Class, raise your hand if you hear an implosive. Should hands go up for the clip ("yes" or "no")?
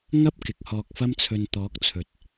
no